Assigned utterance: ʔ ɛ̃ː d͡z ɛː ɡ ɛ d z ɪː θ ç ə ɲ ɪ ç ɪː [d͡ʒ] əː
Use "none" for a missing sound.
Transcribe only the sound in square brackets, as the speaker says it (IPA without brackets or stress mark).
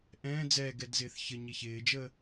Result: d͡ʒ